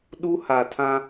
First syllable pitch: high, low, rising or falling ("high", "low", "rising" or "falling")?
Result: high